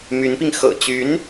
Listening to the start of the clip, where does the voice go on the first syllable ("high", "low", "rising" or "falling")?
rising